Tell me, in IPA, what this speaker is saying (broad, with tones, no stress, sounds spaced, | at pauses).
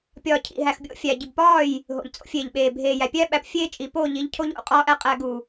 pʲ ɒː˨ cʰ ḭ˨ ɦ æ˨ x bʲ o̰˦ fʲ æ˨ ɟ i˨ b p ɒː˦˨ j | ɦ o̰˨ ʎ t͡sʼ o̰˦ fʲ eː˨ ʎ ɓ eː˨ bʱ eː˨ j æ˨ pʲ æ˦ ɓ æ˨ p fʲ eː˦ t͡ʃʼ i˨ p oː˦˨ ʎ i˨˦ ʎ cʰ o˦ ʎ o̰˦ qʼ ɒː˦ ʔ æ˦ qʼ æ˨ ɡ u˨